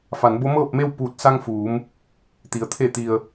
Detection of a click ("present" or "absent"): absent